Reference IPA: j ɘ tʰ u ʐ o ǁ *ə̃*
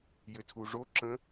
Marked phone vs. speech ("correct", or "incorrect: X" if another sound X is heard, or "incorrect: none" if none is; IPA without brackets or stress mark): correct